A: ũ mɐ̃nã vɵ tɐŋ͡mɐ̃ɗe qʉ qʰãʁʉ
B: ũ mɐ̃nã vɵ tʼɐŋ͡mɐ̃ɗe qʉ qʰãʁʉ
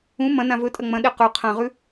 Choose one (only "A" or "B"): B